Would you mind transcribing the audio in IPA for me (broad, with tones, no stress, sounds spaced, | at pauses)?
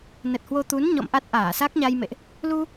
n ə˨˩ t̚ h w o˧ t̪ u˨˦ n ɲ ɔ̰˧˨ m ʔ a˦˥ t̚ ʔ aː˧˩ s a˦˥ k̚ ɲ a˧ j m ḛ˧˨ ʔ | l u˧